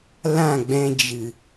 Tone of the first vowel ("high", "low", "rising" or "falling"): falling